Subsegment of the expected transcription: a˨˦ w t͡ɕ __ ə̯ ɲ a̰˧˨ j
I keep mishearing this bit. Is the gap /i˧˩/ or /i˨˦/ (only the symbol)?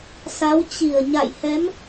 i˧˩